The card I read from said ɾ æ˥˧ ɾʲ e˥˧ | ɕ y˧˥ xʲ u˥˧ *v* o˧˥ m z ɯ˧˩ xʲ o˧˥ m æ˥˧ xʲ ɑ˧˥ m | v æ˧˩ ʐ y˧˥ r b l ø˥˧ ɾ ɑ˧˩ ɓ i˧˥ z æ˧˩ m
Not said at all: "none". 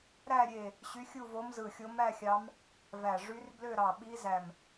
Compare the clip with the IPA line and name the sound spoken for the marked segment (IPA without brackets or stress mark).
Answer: v